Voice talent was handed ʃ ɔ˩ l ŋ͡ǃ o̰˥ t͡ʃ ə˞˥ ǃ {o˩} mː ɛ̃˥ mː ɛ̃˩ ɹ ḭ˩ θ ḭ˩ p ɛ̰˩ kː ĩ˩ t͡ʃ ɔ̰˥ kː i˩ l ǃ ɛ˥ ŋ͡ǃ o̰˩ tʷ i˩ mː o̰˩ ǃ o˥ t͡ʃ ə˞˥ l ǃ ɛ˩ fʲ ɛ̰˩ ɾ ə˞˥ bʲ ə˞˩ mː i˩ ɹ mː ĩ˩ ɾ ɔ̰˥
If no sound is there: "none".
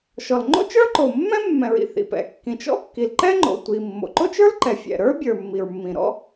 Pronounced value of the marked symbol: o˩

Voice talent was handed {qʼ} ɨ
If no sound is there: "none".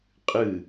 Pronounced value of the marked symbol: qʼ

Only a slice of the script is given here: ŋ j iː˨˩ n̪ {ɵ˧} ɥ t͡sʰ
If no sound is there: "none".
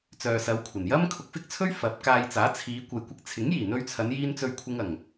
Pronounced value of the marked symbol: ɵ˧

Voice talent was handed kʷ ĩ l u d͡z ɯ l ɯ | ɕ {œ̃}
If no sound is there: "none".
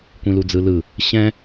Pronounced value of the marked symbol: ɛ̃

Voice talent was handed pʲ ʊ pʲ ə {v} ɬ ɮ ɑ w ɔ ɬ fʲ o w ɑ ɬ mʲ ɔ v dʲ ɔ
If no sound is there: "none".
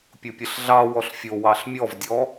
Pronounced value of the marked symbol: none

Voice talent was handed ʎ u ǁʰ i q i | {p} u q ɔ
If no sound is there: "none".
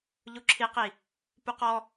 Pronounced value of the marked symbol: p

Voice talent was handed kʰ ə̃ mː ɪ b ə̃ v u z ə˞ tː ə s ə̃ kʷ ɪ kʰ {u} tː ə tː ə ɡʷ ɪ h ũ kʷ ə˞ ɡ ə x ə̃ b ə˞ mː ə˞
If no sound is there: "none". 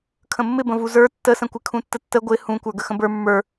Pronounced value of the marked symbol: ũ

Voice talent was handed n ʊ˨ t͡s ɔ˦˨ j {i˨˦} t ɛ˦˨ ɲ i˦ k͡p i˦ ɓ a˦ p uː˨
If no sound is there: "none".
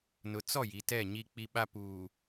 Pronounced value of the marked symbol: i˨˦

